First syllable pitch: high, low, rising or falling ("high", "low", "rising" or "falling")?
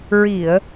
low